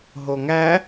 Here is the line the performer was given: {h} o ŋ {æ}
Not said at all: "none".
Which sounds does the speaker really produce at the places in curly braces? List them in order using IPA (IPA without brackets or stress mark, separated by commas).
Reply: ɦ, æ